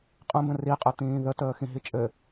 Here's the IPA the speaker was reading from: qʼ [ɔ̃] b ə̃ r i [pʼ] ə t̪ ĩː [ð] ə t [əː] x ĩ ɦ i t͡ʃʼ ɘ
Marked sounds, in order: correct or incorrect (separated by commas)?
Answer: incorrect, incorrect, correct, correct